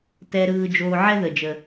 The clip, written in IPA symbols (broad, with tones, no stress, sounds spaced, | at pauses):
t ɛ˧ ɾ ɯː˧ d͡ʒ oː˧ ʕ ɛ˥ ð ə˩ d͡ʒ ə˩